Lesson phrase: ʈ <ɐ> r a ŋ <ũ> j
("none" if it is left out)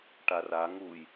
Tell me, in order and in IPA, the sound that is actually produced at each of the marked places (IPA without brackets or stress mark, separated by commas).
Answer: a, u